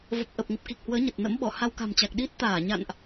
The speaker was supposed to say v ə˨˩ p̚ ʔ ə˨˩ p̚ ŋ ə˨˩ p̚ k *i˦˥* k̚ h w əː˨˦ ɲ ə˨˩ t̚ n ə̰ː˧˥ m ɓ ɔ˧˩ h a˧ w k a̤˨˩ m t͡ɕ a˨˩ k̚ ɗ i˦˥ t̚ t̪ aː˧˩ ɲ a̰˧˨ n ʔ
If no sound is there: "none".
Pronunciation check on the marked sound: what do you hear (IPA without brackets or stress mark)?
i˨˩